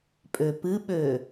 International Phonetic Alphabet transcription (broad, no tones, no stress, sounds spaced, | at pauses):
pʼ ø p ɨ ɓ ø